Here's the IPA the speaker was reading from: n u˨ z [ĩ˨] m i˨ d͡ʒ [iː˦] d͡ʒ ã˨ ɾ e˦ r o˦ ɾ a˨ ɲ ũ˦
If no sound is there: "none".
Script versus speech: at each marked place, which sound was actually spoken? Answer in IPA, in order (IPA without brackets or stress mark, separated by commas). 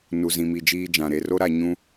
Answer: ĩ˨, iː˦